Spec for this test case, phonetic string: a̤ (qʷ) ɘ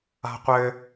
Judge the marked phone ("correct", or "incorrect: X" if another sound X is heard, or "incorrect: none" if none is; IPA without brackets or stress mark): correct